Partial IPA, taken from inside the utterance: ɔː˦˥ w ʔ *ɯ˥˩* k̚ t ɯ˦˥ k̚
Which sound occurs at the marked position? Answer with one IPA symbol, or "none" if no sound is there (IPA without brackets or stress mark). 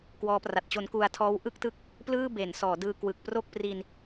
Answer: ɯ˥˩